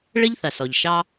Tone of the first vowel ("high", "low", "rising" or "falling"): high